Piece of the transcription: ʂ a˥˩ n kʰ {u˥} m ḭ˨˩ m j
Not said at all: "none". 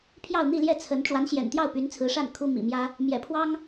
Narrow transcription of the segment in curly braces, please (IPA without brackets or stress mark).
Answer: u˥